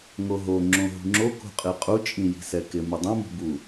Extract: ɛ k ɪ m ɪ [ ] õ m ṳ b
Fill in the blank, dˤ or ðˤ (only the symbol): dˤ